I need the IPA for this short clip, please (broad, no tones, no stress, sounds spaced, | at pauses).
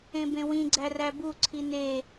ẽ b ẽ w ĩ ɡ͡ǀ æ r æ b u ǀʰ i n e